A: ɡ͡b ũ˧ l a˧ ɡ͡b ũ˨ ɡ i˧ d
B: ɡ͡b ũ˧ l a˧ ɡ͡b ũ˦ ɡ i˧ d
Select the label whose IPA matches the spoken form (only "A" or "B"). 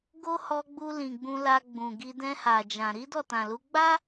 A